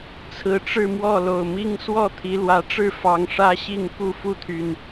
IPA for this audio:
t͡sʰ ɹ̩˨˩ ʈ͡ʂ ɻ̩˥˨ m w ɔ˥˨ l o˨˩ ʊ̯ m i˦ ŋ s w ɔ˥˨ t̪ʰ i˨˦ l w ä˨˦ ʈ͡ʂ ɻ̩˥˨ f ɑ˨˦ ŋ ʂ ä˦ ɕ i˥˨ ŋ k u˥˨ f u˥˨ t̪ʰ y˨˩ n

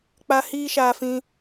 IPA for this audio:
k͡p a˧ h iː˦ ʃ aː˧ f ĩ˧

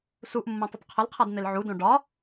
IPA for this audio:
s u ʔ mː õ tˤ ə tˤ qʰ ə l qʰ a d n̪ e l ʕ u d õ ɖ ɒ

